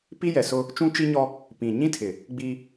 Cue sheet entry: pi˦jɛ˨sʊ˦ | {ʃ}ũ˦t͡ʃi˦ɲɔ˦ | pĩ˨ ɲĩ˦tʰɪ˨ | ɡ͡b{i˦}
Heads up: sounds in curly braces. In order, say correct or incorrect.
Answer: incorrect: t͡ʃ, correct

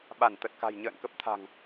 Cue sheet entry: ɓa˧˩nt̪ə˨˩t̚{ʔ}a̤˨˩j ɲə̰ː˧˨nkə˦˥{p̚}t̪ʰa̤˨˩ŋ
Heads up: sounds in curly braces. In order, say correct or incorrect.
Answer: incorrect: k, correct

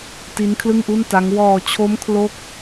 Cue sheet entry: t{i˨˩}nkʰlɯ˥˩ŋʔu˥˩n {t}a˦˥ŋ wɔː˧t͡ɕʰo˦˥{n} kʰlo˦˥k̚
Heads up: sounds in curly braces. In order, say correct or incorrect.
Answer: incorrect: i˦˥, correct, incorrect: m

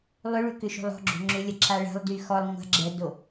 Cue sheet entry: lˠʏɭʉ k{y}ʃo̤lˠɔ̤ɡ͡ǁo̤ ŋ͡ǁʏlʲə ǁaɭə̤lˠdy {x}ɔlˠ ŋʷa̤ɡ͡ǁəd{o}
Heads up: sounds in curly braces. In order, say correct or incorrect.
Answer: incorrect: ʏ, correct, correct

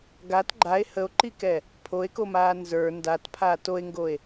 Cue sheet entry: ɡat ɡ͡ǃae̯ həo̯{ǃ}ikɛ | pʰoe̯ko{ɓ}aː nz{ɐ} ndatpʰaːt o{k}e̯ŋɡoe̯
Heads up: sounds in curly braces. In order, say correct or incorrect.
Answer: correct, incorrect: m, incorrect: ə˞, incorrect: none

